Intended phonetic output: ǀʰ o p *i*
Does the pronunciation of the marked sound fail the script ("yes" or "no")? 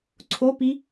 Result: no